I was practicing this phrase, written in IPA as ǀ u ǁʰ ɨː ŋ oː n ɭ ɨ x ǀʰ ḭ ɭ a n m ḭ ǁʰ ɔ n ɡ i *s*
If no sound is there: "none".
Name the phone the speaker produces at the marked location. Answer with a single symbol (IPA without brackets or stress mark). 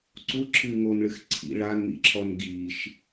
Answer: ʃ